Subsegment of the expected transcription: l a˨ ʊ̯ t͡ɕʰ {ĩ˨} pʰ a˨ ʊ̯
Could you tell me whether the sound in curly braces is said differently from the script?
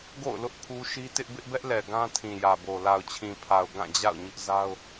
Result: no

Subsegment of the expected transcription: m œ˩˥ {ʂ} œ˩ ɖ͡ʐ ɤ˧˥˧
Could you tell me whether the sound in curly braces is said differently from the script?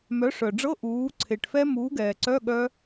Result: no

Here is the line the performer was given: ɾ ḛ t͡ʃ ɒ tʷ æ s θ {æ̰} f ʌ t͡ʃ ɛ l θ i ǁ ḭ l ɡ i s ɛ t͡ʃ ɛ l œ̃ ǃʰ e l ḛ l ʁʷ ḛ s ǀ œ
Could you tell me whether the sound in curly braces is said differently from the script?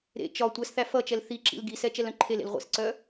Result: yes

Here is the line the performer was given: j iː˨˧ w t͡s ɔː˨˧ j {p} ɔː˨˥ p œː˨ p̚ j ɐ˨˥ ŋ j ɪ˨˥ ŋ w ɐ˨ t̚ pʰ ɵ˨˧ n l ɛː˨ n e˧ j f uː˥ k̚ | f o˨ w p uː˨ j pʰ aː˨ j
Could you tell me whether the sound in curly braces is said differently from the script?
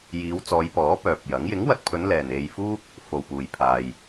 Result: no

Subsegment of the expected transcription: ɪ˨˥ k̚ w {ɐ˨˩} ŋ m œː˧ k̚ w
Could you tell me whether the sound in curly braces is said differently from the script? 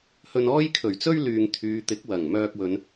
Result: no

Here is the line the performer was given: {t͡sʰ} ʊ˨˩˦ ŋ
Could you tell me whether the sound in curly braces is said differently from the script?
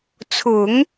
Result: no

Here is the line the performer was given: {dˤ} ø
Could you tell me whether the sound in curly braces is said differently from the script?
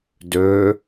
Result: yes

